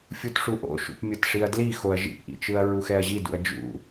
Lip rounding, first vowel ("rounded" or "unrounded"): rounded